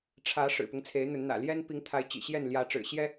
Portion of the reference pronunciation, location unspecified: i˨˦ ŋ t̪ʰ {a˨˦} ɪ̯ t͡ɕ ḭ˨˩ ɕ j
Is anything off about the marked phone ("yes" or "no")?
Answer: no